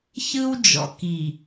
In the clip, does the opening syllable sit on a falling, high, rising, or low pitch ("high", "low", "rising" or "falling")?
high